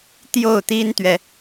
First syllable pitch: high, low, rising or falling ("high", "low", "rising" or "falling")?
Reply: falling